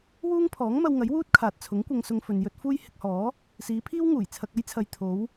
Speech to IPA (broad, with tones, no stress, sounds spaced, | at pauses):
w uː˥ ŋ pʰ ɔː˨˥ ŋ m ɐ˧ w ŋ ɐ˨˥ j w uː˥ t̚ kʰ aː˨ t̚ t͡sʰ ʊ˨˥ ŋ kʷ ɐ˧ ŋ s ʊ˧ ŋ f ɵ˨ n j ɵ˧ t̚ f uː˥ j h ɪ˧ k̚ h ɔː˨˥ | s iː˨˧ pʰ iː˥ w ŋ uː˨˩ j t͡sʰ ɐ˧ k̚ ɐ˥ j t͡sʰ ɐ˨ j t̪ʰ o˨˧ w